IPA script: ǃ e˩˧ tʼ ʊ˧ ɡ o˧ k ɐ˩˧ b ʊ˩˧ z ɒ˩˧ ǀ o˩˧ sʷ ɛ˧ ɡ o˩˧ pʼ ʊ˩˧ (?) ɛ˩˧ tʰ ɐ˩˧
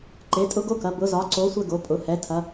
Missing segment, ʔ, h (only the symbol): h